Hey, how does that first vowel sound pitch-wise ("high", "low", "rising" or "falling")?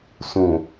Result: low